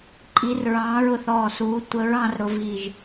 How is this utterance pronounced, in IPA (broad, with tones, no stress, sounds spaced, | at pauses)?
ǃʼ i˨˦ r ɹ ɑ̃ː˨˦ ɹ ʊ˧˩ θ ɔː˧˩ s uː˨˦ tʷ ə˨˦ ɹ ɑ̃˨˦ r ɾ ʊ˨˦ v iː˧˩ ʒ